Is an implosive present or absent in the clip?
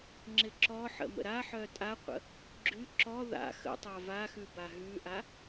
absent